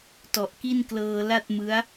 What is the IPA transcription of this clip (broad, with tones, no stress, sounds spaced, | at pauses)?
t ɔ˨˩ ʔ k i˥˩ n k l ɤː˧ l a˥˩ t̚ m ɯ˦˥ a̯